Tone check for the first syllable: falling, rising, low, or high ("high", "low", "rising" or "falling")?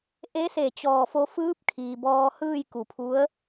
rising